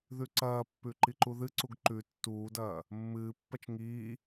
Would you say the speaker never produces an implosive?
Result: yes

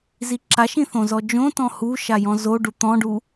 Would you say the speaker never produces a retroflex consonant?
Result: no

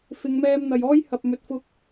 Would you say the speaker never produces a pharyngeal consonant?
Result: yes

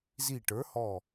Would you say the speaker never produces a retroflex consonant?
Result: no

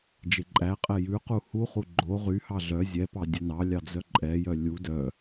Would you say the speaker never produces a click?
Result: no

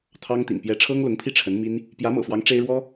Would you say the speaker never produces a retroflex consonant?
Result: no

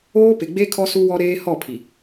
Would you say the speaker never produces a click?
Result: yes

